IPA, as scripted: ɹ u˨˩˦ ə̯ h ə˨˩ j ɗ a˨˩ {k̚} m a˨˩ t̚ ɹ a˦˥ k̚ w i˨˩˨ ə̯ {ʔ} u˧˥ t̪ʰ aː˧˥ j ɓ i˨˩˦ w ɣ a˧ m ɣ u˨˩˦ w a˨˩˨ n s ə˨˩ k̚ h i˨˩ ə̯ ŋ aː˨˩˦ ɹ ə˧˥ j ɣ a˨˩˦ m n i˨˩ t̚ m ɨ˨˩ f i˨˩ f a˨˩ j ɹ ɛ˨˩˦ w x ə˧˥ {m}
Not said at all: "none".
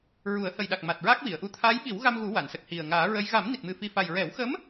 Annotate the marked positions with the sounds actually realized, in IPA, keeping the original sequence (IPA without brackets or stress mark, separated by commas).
k̚, ʔ, m